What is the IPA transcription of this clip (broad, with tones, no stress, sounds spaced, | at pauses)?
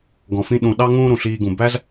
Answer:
ɡ ɔ̃˩ f ĩ˧ ɗ ũ˩ ɗ ɑ˥ ŋ ũː˥ ɾ ũ˩ ɬ iː˧ ɡ ũ˩ b æ˥ z